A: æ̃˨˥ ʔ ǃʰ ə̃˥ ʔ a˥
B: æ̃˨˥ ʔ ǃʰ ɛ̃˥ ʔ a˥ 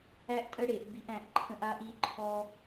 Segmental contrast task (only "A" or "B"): A